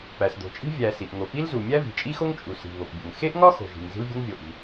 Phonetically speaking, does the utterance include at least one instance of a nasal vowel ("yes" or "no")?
no